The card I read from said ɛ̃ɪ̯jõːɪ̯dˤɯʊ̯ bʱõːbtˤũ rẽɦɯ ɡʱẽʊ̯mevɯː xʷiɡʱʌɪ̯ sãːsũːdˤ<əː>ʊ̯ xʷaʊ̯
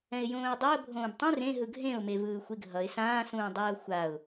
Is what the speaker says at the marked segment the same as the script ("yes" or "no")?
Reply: no